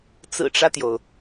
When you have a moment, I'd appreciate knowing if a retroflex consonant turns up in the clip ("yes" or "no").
yes